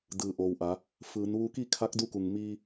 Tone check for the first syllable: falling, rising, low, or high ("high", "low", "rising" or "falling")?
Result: low